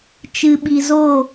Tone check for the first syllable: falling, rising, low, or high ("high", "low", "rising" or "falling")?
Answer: low